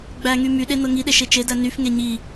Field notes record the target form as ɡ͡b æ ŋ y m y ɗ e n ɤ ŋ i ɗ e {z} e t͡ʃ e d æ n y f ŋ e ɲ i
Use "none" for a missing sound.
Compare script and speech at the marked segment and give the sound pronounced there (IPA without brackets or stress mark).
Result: ʃ